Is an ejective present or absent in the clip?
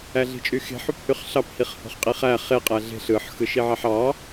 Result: present